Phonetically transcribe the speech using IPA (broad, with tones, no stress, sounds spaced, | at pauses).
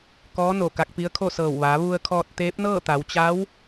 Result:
k ɔː˧˥ n o˧˩ k a˧ k̚ p i˧˥ ə̯ kʰ o˥˨ s ɤː˧˩ w ʋ a˩˧ ʋ u˧ ə̯ kʰ ɔː˧ t̚ t̪ eː˧˥ p̚ n ɤː˥˨ t̪ a˩˧ w t͡ɕ a˧˥ w